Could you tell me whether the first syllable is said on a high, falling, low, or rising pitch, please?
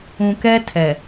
low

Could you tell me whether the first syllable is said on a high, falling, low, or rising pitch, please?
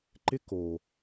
high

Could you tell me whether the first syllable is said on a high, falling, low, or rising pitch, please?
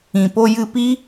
low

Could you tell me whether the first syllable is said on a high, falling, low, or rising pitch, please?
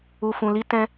low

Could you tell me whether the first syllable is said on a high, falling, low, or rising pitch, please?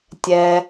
low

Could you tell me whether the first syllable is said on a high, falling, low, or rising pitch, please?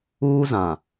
high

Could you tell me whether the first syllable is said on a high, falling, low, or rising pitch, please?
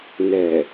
low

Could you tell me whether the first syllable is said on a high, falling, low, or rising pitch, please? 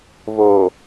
low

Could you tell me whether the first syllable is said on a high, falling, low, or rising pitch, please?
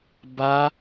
high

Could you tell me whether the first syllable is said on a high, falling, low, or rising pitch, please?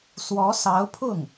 rising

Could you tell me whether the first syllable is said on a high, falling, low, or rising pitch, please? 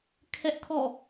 high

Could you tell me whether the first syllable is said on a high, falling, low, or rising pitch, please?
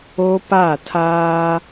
high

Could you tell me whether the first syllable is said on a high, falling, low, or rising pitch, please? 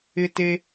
high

